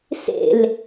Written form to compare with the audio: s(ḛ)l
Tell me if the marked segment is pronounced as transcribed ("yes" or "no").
yes